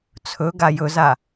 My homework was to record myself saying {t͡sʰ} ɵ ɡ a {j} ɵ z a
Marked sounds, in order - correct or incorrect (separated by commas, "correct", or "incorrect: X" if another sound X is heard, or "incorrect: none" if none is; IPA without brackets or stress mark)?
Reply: correct, correct